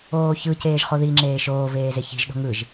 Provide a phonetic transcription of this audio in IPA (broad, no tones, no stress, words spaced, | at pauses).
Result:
oːçɯ ceːʒχoði ŋ͡ǁeːʃoːveːze çi̤ʒ ɗo̤ŋɯʒ